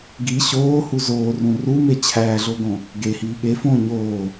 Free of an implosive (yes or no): no